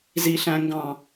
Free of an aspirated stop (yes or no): yes